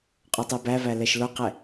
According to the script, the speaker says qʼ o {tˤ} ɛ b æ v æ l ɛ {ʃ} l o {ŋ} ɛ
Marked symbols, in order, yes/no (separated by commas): yes, yes, no